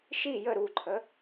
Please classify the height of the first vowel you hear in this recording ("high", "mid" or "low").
high